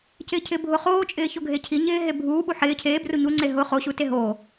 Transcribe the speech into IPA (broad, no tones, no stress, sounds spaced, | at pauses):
c ɪː cʰ ɪː bʱ ʊ χ oː t͡ʃʼ ɪː ç o ɡʱ e cʰ i ɲ ɪː ɦ e bʱ uː ɓ u ħ ɪː cʰ eː b r u ɲ u ŋ͡ǀ e ɦ ʊ χ o ɕ u t e ɦ o